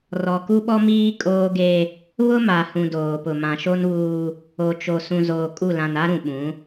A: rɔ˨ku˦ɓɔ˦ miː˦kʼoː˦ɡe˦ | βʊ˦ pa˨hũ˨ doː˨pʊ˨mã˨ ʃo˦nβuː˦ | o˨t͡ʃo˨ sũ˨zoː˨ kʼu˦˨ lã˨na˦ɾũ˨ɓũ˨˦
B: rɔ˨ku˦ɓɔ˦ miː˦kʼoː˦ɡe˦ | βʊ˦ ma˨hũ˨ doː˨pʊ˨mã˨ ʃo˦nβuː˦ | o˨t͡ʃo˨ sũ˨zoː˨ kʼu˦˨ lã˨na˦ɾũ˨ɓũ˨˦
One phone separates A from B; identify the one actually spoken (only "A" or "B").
B